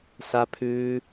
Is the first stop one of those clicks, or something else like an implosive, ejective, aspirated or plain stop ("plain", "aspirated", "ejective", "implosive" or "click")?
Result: aspirated